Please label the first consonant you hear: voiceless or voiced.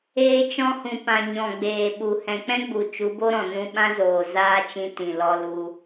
voiceless